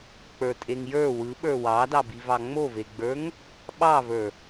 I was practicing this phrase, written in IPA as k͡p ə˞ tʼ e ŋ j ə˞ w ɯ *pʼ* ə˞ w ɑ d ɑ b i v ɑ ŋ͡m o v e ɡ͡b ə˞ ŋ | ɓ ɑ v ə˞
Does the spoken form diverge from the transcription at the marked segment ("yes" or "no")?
yes